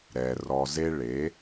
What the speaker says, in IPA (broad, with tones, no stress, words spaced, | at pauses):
ɾɛ˩ rɔ˩ze˧ ɭe˩˥